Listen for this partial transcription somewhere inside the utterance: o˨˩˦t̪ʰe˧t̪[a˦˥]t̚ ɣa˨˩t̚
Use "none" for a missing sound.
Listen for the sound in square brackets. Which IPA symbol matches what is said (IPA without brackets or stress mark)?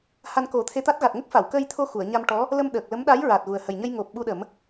a˦˥